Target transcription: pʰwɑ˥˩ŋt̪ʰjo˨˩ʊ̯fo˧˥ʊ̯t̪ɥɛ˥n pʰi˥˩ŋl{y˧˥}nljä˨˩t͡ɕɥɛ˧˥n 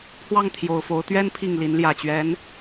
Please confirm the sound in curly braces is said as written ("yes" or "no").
no